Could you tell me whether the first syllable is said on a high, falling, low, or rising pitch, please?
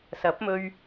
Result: rising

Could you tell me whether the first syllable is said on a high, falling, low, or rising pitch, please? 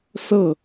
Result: falling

